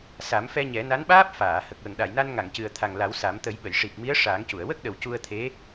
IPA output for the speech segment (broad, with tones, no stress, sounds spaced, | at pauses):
s a˨˩˦ m f ɛ˧ ɲ ɛ˨˩˦ n a˧˥ n ɓ aː˦˥ p̚ f aː˨˩˨ h ə˨˩ k̚ w ə˨˩˨ ŋ ɗ a˨˩˨ j n a˧ n ŋ a˨˩˨ ŋ c ɨ˨˩ ə̯ t̪ʰ a˨˩ ŋ l a˨˩˦ w s a˨˩˦ m t̪ ə˨˩˦ j ɓ ə˨˩˨ j ʂ i˨˩ p̚ m i˧˥ ə̯ ʂ aː˨˩˦ ŋ c u˨˩˨ ə̯ w ə˦˥ k̚ ɗ ə˨˩ w c u˧ ə̯ t̪ʰ e˧˥